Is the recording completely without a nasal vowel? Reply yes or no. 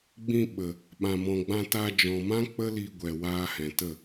no